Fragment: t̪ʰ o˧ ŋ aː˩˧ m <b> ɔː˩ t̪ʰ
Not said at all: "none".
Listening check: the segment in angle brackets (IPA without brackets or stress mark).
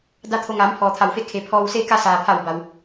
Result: pʰ